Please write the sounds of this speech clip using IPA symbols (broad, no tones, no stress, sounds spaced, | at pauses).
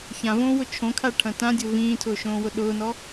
ç ã v õː w ʊ t͡ʃʰ õ kʰ a ʈʰ ɐ̃ t ã dʲ ʊ v ĩː tʰ ʊː ʃ õː w ʊ ɗ ʊː n ɔ